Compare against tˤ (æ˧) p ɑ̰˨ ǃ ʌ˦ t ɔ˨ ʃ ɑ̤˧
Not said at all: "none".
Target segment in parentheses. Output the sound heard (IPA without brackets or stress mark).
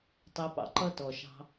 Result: æ˧